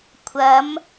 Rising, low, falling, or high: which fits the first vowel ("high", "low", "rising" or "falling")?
rising